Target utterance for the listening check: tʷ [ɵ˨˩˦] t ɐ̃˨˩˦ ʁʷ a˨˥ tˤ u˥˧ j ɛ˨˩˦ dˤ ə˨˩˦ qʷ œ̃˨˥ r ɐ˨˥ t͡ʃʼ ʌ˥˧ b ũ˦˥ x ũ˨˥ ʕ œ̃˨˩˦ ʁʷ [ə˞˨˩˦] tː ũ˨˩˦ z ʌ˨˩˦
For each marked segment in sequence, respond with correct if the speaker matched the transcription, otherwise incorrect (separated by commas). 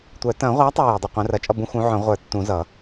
incorrect, correct